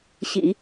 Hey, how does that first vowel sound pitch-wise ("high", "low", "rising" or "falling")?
low